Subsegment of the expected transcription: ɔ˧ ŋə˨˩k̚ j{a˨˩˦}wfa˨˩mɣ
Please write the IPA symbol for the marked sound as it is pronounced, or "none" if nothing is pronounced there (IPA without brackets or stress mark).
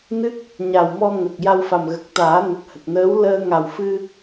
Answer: a˧